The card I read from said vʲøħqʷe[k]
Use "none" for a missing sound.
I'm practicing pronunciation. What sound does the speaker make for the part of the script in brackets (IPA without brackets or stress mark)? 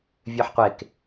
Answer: k